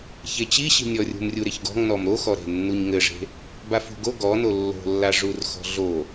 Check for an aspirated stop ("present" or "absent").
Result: absent